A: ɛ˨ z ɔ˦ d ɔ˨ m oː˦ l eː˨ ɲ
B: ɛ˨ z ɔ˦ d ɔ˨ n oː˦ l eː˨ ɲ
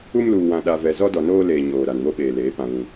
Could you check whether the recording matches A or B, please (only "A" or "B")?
B